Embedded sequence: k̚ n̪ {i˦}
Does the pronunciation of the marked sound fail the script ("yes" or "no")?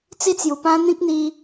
no